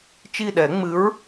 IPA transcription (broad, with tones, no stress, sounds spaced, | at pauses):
t͡ʃ i˦˨ ɗ ɛ˨˩˦ ŋ͡m ɨ˨˥ ɹ